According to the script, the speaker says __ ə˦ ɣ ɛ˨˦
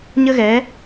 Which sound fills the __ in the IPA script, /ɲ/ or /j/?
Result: ɲ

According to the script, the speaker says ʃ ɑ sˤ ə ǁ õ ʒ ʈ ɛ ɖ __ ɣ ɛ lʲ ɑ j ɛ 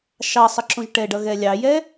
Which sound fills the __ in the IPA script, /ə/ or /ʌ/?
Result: ʌ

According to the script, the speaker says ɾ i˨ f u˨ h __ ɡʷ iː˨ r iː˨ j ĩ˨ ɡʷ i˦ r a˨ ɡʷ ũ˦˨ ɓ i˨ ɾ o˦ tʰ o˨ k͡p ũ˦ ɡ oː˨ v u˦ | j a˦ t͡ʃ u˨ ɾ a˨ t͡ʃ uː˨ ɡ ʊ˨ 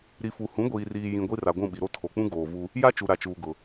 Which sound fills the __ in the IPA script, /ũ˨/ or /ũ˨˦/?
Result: ũ˨˦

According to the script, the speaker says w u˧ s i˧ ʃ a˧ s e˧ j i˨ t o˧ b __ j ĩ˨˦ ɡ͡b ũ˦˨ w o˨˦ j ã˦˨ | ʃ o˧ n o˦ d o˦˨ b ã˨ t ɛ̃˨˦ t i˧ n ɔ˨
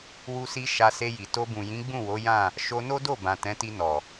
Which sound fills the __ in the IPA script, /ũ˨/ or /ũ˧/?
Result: ũ˨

